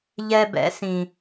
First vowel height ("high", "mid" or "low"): mid